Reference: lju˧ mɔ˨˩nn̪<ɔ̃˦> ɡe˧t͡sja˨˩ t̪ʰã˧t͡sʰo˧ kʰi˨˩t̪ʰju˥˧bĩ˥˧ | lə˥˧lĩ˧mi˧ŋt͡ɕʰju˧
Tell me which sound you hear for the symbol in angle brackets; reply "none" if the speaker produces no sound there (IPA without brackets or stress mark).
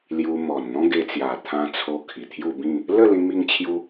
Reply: ɔ̃˦